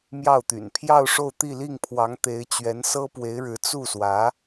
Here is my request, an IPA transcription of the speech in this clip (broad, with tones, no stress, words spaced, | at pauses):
mjɑ˥˩ʊ̯t̪y̰˨˩n pʰjɑ˥˧ʊ̯ʂo˥˧ʊ̯ t̪i˥˧li˥˩ŋpʰwɑ˧˥ŋ t̪e˧˥ɪ̯ t͡ɕɥɛ˧˥n sɤ˥pwe˧˥ɪ̯ɻɻ̩˧˥ t͡su˥˩swä˧˥